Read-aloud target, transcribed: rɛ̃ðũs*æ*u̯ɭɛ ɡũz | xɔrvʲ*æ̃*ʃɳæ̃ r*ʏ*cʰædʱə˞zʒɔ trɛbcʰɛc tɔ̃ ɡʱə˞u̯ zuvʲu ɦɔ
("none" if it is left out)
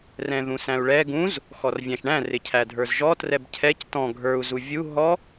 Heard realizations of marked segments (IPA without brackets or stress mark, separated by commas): æ̃, æ̃, ɪ